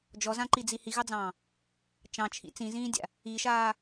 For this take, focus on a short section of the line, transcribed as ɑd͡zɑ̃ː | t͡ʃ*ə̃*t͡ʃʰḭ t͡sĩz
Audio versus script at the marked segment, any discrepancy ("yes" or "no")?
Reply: yes